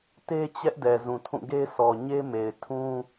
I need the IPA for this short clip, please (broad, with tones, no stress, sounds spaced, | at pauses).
t e˦ t͡ɕ ɛ˦ ʔ d ɛ˨ z ũ˨ tʰ ũ˦˨ ɡ e˦ sʰ ɔ˨ ɲ e˦ m e˨ ɪ̯ tʰ ũ˦